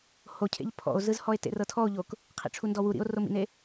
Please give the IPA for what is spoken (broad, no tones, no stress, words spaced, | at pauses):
hocʰḛʎ pʰɔ̰o̯zɯzhɔe̯ tḛrɤtʰɔo̯ʎok | qʰḭʈ͡ʂʰundɔwu ɾḭo̯romḭne